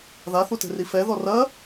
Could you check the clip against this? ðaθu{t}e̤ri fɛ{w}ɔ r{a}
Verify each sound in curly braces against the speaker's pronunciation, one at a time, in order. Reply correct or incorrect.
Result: correct, incorrect: ð, incorrect: ɐ

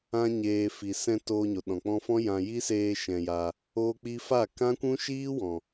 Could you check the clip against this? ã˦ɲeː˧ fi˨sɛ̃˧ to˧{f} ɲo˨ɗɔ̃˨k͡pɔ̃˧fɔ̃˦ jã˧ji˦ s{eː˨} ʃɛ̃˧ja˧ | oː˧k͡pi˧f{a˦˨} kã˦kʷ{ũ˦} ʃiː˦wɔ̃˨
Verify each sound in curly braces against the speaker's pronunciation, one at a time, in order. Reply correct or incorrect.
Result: incorrect: none, incorrect: eː˧, correct, correct

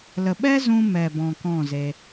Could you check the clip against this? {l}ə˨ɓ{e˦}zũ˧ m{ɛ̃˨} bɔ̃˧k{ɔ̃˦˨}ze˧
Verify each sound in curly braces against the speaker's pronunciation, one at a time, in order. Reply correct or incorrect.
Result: correct, incorrect: ɛ˦, incorrect: ɛ˨, correct

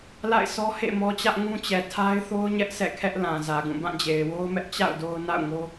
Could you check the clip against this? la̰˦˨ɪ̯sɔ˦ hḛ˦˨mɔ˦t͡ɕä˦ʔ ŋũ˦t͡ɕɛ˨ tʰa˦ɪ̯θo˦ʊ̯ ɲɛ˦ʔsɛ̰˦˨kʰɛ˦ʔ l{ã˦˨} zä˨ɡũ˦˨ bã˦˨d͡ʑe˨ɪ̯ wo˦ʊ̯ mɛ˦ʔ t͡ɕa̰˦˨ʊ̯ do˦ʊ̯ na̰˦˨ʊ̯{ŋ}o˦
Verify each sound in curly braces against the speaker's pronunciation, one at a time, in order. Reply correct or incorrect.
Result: incorrect: ã˨, correct

